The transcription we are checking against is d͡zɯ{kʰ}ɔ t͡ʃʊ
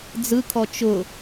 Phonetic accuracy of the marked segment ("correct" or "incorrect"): correct